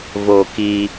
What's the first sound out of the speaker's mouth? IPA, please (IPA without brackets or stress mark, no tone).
v